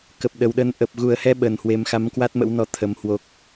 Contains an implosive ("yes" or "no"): yes